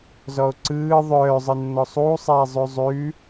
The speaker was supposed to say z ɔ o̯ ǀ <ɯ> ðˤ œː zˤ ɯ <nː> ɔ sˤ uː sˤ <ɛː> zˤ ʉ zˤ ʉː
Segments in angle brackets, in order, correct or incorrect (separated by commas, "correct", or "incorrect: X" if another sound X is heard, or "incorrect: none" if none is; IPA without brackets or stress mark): incorrect: ɯː, correct, correct